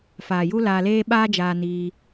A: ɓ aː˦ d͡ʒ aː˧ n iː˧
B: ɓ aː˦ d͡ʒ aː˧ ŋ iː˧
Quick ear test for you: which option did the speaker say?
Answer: A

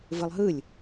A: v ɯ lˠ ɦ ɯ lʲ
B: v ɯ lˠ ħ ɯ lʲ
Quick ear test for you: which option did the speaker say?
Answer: A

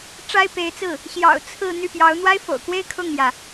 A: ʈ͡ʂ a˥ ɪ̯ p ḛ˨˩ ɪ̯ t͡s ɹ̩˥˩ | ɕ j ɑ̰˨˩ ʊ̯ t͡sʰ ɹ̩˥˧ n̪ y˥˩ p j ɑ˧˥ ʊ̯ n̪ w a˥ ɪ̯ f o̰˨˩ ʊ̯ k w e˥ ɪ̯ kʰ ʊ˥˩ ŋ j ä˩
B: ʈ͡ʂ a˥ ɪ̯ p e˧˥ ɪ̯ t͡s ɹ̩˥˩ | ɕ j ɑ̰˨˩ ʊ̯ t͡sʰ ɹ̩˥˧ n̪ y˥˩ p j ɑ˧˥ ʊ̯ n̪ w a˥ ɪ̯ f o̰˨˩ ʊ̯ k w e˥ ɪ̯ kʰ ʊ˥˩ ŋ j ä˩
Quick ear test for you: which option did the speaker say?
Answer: B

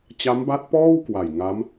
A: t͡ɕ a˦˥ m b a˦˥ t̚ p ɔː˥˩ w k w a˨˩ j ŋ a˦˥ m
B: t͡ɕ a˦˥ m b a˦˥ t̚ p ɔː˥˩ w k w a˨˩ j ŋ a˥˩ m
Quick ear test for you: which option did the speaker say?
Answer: A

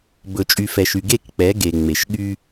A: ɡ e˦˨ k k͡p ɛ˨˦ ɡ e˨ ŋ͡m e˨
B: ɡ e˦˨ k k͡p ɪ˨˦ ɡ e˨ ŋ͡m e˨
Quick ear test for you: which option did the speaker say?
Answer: A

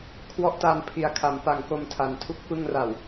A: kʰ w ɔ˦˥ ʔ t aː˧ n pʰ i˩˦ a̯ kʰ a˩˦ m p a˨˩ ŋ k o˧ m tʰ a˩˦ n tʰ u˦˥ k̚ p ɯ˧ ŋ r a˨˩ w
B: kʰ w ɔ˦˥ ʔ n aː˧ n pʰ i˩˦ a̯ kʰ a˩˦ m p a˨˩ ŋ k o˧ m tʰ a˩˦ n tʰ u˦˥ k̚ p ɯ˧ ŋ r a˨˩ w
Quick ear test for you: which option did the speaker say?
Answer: A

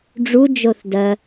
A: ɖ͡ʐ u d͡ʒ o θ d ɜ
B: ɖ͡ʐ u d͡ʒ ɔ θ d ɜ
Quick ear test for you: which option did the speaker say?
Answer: A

